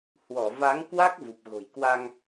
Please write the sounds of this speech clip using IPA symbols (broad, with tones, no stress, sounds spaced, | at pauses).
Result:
h w ɔ˧˩ v a˨˦ ŋ k w a˦˥ k̚ v u˨˩ p̚ ɣ o̤˨˩ j k w a˧ ŋ